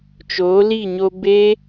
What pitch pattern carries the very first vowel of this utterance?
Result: rising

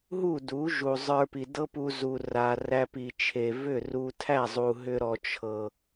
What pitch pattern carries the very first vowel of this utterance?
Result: falling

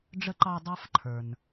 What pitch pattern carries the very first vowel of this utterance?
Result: high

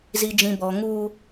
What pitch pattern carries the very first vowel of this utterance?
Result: low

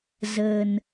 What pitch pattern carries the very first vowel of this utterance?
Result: low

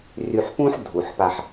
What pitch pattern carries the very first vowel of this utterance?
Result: low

